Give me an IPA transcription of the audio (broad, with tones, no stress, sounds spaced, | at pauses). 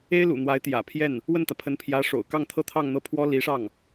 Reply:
e˥ ɪ̯ l ṵ˨˩ n̪ w a˧˥ ɪ̯ t̪ j ä̰˨˩ pʰ j ɛ˥˩ n | w ə˥˩ n t̪ ä˩ pʰ ə˧˥ n pʰ j ä˧˥ ʂ o̰˨˩ ʊ̯ k ɑ˥˩ ŋ t̪ʰ ɤ˥ t̪ʰ ɑ˥˧ ŋ n̪ ɤ˥˩ pʰ w ɔ˥ l i˧˥ ʂ ɑ˥˩ ŋ